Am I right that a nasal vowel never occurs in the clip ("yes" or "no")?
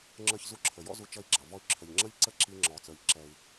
yes